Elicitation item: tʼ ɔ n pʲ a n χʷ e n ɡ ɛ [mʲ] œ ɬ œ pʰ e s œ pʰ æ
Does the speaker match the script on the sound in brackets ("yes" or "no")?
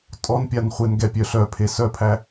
no